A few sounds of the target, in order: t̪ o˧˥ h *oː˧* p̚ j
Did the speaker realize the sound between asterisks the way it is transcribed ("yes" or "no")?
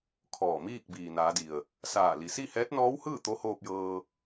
yes